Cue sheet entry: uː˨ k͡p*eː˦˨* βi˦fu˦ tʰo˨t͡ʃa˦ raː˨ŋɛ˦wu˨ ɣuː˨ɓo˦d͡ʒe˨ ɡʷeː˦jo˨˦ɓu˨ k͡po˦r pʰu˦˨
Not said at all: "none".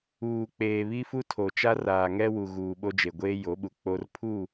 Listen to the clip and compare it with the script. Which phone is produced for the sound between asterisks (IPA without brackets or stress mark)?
eː˨